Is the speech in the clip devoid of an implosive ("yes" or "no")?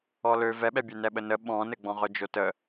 no